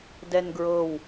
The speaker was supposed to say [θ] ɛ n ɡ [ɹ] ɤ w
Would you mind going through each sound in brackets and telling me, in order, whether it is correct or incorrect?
incorrect: d, correct

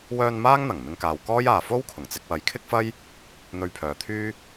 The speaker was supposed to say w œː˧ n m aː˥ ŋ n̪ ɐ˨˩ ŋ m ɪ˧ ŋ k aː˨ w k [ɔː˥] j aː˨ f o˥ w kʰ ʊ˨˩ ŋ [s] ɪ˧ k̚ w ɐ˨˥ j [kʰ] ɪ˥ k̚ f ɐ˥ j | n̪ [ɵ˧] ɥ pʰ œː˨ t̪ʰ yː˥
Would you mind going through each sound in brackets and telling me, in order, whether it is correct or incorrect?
correct, incorrect: t͡s, correct, correct

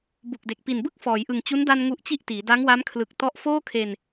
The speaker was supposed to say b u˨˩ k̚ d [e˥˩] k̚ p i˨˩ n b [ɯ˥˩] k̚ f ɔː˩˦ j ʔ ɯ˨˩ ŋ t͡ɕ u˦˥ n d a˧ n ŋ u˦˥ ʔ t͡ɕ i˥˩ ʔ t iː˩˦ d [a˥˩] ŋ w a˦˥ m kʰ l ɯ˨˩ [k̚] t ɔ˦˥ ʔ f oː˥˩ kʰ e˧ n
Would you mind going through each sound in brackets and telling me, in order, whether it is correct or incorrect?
incorrect: e˨˩, correct, incorrect: a˦˥, correct

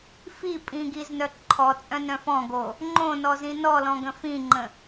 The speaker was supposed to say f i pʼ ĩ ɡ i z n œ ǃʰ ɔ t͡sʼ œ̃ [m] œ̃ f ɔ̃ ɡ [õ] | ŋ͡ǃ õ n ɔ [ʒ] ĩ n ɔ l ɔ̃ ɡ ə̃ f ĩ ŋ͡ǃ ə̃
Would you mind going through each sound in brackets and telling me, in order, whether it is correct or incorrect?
incorrect: n, incorrect: o, incorrect: z

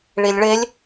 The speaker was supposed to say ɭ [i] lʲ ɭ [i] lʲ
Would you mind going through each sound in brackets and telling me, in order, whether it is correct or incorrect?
correct, incorrect: e

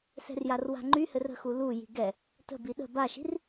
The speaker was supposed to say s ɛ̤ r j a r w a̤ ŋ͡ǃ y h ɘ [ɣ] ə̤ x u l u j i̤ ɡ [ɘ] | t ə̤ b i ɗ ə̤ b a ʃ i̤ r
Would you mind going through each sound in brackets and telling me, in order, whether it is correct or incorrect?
incorrect: r, incorrect: ɛ

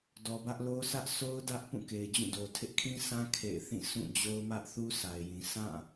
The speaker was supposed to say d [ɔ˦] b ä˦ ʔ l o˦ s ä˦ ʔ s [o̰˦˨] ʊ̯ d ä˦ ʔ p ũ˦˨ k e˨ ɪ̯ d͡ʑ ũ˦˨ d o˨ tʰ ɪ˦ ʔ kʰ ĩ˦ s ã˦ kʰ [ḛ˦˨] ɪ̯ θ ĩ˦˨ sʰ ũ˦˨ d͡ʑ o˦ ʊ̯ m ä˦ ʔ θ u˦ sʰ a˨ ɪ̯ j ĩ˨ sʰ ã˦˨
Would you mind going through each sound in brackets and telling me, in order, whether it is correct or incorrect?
incorrect: ɔ˨, incorrect: o˦, correct

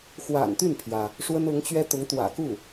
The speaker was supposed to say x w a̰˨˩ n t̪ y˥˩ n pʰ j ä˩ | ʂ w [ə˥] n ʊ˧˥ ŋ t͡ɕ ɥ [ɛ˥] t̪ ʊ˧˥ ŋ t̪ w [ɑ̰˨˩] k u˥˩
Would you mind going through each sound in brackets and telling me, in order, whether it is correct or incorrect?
correct, correct, incorrect: ä̰˨˩

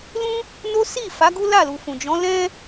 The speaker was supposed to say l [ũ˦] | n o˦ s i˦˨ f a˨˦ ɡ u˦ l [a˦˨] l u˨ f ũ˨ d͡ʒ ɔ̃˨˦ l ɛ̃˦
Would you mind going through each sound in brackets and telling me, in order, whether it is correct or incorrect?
correct, correct

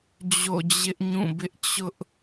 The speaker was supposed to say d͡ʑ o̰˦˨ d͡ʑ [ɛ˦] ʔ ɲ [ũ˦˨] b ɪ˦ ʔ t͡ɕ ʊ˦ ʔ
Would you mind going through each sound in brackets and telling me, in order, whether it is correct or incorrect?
incorrect: ɪ˦, correct

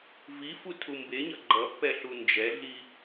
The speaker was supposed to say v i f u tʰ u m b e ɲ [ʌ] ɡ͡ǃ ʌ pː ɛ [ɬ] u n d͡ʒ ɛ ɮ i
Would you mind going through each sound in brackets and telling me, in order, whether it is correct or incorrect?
correct, correct

